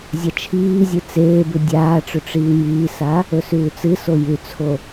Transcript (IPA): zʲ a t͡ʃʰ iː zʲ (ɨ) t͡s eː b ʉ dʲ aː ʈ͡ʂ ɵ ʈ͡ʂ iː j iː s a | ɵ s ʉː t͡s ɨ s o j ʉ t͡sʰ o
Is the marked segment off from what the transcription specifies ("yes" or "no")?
no